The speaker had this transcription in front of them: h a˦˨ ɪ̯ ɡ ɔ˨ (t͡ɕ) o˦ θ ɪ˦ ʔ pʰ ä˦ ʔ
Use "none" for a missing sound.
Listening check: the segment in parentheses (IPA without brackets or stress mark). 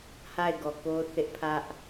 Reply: k